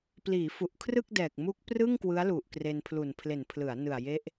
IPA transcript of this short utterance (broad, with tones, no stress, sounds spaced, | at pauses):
p l iː˩˦ f u˨˩ ʔ kʰ r ɯ˥˩ k̚ d ɛː˨˩ k̚ m u˦˥ k̚ p r ɯ˥˩ ŋ k w ɯ˦˥ a̯ l u˨˩ ʔ k r e˧ n pʰ l u˨˩ n pʰ l e˨˩ n pʰ l ɯ˩˦ a̯ n ɯ˨˩ a̯ j e˦˥ ʔ